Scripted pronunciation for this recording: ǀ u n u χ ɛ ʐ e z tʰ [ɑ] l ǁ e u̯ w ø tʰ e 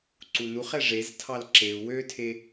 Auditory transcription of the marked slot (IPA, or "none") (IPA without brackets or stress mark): ɑ